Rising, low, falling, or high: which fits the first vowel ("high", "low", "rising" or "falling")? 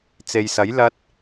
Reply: low